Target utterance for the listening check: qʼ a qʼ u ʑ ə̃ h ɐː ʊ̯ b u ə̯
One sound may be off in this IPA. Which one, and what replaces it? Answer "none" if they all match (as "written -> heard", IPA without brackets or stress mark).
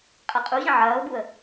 h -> ʕ